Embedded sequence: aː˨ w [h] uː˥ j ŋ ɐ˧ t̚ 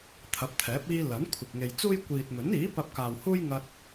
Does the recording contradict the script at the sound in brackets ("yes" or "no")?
no